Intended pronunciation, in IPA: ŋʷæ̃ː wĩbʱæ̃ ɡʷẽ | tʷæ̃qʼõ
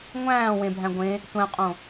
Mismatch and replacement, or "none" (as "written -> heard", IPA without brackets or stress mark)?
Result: ĩ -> ẽ